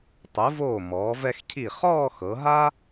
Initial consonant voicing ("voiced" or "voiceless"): voiceless